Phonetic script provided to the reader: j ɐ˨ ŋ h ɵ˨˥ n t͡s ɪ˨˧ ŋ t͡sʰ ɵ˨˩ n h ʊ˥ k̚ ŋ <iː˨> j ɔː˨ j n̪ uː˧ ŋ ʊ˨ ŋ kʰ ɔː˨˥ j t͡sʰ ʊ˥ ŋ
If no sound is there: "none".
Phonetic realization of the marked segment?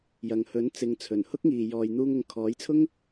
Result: iː˨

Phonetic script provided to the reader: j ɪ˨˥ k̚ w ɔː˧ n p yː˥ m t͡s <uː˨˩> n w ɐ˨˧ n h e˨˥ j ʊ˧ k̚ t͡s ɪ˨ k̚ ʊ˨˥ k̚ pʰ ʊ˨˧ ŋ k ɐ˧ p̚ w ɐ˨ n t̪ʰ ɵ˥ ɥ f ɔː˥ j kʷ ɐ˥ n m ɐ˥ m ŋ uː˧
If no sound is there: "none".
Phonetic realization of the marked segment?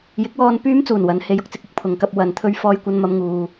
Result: uː˨˩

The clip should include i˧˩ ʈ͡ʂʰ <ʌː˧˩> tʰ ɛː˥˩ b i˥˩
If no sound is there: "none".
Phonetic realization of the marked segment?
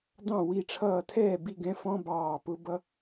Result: ʌː˧˩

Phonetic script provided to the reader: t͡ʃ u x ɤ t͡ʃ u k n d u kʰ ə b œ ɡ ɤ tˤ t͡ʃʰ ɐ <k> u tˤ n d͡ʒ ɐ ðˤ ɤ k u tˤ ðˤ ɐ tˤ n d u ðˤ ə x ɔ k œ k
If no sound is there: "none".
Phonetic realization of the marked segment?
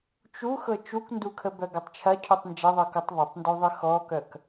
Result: cʰ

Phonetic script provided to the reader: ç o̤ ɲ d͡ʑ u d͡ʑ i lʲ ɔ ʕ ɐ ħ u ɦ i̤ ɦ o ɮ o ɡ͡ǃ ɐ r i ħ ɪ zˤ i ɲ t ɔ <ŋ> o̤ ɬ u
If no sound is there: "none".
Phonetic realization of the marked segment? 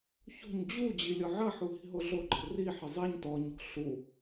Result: ɲ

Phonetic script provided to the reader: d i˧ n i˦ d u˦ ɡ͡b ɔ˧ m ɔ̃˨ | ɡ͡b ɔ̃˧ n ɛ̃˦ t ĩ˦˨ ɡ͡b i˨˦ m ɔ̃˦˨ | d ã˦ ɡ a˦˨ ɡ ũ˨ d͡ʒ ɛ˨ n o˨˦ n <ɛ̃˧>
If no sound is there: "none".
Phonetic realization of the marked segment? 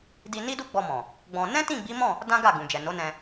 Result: ɛ̃˧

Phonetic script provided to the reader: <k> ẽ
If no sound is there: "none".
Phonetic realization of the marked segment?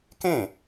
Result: k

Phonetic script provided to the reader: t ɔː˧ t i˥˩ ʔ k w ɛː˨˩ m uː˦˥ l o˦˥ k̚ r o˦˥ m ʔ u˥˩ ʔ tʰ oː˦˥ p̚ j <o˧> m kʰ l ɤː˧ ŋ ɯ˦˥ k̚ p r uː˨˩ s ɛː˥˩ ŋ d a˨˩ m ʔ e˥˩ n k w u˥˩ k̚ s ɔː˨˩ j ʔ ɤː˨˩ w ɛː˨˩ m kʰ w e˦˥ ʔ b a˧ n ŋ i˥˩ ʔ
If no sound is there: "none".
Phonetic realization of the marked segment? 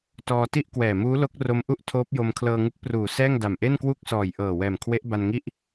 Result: o˧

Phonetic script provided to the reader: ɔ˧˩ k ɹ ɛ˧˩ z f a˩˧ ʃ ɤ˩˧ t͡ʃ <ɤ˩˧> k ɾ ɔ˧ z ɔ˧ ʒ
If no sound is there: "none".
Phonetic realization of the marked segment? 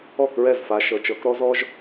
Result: ɤ˩˧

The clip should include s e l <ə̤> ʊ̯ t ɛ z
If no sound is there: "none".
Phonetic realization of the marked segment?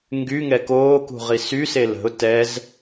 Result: ə̤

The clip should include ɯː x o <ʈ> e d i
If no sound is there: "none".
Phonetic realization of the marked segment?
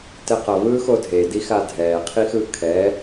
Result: dʱ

